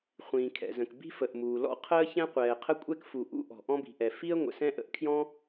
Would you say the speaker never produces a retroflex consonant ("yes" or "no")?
yes